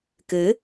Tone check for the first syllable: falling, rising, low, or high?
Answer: rising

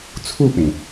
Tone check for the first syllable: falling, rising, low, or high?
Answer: falling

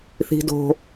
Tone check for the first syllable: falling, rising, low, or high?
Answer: high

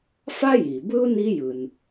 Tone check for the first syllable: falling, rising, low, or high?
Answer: high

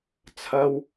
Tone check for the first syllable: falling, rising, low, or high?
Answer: high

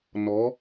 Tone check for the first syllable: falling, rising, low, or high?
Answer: rising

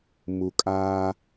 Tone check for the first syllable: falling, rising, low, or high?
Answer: low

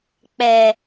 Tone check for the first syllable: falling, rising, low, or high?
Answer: low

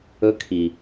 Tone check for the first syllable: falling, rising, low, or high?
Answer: rising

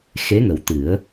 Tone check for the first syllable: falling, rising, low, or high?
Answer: rising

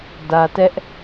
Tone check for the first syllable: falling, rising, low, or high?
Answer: low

